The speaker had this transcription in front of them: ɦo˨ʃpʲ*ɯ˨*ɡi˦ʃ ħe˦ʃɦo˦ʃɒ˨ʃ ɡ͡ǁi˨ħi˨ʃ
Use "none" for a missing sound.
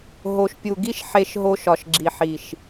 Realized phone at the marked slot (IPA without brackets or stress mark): u˨